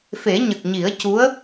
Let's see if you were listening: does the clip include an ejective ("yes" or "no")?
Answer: no